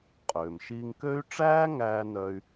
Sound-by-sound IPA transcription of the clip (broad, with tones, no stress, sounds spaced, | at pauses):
qʼ øː˩ m ʃ iː˧ ŋ k ø˥ y̯ ʈ͡ʂ æː˥ ŋ æː˧ n œ˧ y̯